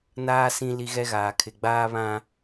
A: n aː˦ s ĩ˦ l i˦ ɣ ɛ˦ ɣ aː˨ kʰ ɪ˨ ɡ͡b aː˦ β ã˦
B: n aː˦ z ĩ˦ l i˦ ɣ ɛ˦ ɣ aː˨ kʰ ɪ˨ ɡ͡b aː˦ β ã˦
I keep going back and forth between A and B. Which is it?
A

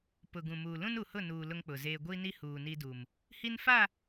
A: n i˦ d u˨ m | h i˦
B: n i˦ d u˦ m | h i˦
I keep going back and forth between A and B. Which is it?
A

